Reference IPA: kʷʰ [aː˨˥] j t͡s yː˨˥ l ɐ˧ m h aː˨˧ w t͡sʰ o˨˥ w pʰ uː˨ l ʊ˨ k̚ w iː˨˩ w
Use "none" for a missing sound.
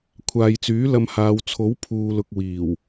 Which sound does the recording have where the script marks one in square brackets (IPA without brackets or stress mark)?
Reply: aː˨